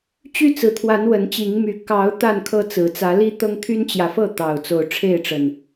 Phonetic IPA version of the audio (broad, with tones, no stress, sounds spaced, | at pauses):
t͡ɕ y˦ t͡s ɹ̩˨˩ t̪ʰ w a˨˦ n w ə˨˦ n t͡ɕ i˨˦ ŋ m y˨˦ k ɑ˨˦ ʊ̯ t̪ a˥˨ n kʰ ɤ˦ t͡s ɹ̩˨˩ t͡s ä˨˦ l i˦ t̪ ɤ˦ ŋ t̪ʰ y˦ n t͡ɕ j ä˨˦ f ɤ˥˨ t̪ ɑ˨˩ ʊ̯ t͡s o˨˦ ʊ̯ ʈ͡ʂʰ e˥˨ ɪ̯ ʈ͡ʂ ə˨˩ n